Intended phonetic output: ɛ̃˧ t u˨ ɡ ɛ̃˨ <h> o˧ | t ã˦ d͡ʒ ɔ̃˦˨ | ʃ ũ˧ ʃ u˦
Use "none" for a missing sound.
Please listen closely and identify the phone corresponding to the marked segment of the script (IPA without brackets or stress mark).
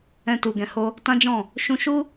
h